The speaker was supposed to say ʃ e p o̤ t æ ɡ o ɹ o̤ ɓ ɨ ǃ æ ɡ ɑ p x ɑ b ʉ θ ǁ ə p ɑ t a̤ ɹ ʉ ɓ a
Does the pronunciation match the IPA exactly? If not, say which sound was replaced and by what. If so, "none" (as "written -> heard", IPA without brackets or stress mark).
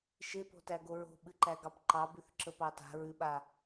x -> ǃ